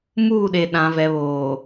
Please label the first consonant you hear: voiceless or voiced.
voiced